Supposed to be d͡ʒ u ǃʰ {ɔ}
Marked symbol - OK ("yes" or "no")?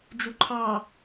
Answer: no